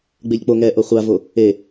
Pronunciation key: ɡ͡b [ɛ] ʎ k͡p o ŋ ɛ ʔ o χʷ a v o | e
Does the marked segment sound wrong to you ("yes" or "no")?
yes